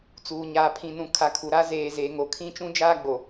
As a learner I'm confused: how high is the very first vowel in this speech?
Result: high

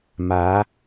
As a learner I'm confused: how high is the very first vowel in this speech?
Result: low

